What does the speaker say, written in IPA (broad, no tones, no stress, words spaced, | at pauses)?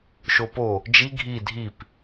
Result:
ʃopo | d͡ʒi ɡʱi dʱip